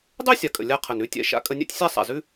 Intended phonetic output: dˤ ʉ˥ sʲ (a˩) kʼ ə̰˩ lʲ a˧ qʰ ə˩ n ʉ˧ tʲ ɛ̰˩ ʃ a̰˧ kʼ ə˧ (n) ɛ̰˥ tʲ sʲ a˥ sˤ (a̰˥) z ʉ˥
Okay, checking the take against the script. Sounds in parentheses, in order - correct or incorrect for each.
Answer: correct, incorrect: nʲ, incorrect: a̰˩

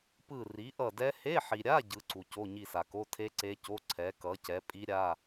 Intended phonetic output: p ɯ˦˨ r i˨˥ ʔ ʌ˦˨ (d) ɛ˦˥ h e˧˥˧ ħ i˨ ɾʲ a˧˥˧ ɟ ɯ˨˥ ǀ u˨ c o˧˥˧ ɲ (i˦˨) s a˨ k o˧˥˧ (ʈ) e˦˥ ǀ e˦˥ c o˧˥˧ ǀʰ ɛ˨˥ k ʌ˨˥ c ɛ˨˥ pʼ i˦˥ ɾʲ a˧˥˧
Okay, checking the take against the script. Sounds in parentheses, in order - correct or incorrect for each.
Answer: correct, correct, incorrect: tʰ

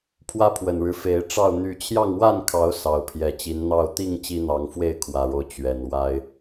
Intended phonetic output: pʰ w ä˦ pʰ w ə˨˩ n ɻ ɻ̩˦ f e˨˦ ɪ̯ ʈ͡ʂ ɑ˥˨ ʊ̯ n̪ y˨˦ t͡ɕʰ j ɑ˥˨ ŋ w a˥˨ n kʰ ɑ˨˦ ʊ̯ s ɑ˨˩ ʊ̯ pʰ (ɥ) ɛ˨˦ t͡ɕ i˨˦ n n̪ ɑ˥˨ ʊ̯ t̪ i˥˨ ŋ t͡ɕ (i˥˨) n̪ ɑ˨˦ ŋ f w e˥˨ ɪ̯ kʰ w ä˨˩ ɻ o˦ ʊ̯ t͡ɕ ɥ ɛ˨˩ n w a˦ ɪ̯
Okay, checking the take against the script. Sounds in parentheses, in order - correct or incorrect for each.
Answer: incorrect: j, incorrect: i˦

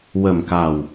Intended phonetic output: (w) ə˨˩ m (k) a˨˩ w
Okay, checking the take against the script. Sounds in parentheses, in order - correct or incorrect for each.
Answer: correct, correct

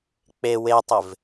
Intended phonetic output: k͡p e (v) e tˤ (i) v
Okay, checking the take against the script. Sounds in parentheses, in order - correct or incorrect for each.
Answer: incorrect: w, incorrect: ɪ

